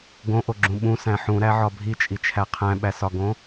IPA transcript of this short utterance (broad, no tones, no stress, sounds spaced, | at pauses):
ɡ õ ʔ o ɡ͡ǁ ũ ɓ ũ s æ̃ ħ ũ ɾ æ ʕ ɒ bʱ i t͡ʃʼ i t͡ʃʰ æ qʰ æ̃ ɓ æ s ɒ ɡ õ